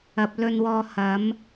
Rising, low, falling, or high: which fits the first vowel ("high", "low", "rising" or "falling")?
low